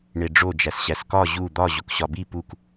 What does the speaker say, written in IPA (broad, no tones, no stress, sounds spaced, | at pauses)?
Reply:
ɳ e ɖ͡ʐ o d͡ʒ æ s ɕ æ s k ɒ ʑ u d̪ ɒ ʑ o k ɕ ɒ b i p u k